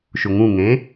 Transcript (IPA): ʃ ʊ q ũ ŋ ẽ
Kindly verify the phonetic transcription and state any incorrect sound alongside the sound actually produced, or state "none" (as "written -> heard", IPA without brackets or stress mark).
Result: q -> ŋ